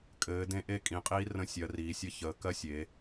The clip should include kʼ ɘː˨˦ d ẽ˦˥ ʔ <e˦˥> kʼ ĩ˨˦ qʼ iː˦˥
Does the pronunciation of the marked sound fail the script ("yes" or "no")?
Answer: no